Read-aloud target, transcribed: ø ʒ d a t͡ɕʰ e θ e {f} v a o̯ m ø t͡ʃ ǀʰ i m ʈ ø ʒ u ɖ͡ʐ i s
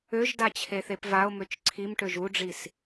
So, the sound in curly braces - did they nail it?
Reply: no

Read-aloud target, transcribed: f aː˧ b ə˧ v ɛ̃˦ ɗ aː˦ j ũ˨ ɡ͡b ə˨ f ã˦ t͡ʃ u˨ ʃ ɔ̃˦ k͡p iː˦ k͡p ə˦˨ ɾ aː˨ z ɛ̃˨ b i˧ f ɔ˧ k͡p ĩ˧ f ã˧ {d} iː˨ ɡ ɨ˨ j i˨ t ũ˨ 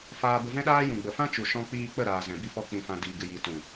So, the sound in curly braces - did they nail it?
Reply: yes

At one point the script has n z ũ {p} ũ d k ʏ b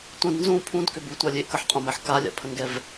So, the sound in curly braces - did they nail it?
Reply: no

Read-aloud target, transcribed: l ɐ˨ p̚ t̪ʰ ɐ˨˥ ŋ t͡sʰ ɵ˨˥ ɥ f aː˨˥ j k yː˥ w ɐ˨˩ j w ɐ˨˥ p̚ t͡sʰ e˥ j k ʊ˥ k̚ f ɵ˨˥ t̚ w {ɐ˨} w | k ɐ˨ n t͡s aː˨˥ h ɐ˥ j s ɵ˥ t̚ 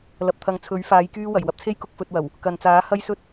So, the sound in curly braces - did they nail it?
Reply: no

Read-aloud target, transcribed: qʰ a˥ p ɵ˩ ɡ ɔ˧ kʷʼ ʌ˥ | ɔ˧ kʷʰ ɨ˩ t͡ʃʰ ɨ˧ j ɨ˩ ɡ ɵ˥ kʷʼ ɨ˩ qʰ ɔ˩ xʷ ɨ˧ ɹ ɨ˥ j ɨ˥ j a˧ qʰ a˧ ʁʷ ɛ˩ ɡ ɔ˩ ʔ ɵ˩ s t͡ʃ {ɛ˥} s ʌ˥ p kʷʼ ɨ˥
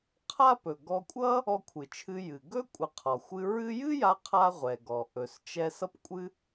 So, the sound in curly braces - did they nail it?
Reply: no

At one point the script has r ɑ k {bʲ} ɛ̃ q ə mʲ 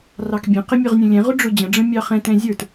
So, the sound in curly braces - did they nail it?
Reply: yes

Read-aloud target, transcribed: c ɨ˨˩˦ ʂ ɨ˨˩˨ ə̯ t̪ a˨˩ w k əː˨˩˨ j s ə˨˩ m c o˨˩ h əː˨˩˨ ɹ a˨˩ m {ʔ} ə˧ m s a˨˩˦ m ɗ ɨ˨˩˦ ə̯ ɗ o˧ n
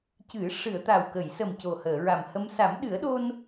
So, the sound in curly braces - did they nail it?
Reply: no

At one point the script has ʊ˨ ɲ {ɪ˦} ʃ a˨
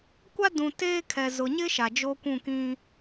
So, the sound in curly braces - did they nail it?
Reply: yes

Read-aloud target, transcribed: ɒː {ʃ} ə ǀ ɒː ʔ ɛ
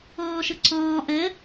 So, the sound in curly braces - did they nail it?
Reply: yes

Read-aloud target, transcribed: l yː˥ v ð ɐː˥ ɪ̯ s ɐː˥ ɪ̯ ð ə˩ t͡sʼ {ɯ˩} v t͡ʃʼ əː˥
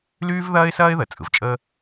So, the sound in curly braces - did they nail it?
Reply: yes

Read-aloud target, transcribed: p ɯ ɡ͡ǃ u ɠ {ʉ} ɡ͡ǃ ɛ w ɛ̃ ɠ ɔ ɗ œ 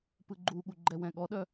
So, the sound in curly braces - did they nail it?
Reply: no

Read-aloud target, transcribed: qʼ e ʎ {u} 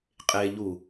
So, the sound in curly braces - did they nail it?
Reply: yes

